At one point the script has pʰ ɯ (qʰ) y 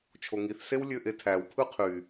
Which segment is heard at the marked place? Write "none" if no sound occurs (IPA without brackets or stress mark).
qʰ